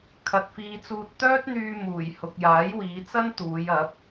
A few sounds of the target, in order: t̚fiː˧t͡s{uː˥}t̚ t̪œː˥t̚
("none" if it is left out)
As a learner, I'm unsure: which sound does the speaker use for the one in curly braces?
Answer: uː˧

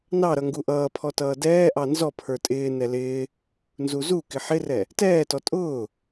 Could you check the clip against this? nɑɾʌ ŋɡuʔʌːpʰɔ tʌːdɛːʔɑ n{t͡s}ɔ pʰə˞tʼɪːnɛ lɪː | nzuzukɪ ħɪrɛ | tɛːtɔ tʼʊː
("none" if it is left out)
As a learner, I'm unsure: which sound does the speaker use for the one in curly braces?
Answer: z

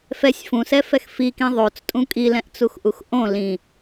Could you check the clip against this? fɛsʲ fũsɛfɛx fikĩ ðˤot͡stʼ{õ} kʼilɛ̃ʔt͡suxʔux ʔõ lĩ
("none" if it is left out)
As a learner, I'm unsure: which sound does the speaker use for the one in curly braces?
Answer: ũ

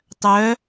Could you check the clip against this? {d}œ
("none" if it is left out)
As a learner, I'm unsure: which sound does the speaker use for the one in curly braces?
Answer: tˤ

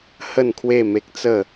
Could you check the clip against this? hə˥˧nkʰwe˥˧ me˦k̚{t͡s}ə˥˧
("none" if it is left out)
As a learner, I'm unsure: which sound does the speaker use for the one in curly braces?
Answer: t͡s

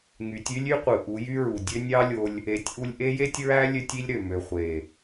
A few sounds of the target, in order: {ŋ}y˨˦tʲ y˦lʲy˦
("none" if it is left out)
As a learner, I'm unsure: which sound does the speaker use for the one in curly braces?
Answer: ŋ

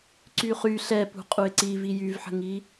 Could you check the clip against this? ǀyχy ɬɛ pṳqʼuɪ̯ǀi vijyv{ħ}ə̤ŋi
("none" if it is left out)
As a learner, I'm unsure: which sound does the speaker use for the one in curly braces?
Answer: ħ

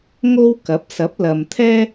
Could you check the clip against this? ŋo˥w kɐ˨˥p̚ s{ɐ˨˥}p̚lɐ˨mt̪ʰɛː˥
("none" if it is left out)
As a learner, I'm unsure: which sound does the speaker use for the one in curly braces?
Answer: ɐ˨˥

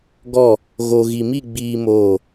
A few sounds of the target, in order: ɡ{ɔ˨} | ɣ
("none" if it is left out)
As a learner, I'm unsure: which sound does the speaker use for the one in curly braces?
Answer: ɔ˦˨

